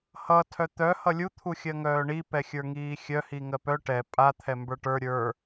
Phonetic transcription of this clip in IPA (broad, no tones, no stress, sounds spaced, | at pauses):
h ʌ tʰ œ t̪ œ h ʌ lʲ u t̪ʰ u xʲ ɜ ŋ œː ɳ i p ɛ xʲ ə˞ ŋ iː xʲ œ h i ŋ ɜ p œ ʈ ɛ pʼ a t̪ʰ ɛ m b ə˞ ʈ ə˞ ɾʲ ə˞